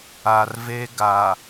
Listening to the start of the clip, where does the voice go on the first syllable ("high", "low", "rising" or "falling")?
low